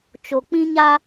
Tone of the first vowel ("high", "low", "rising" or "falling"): low